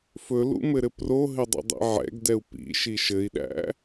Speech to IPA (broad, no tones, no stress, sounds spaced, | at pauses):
f ɵ l ṵ m ɘ ɾ ɘ p r o ɦ ɘ dˤ ḭ dˤ ḭ ʕ ɛ̰ ɡ d ɛ u̯ p ḭ ʃ i ʃ ɘ i̯ ɗ æ̰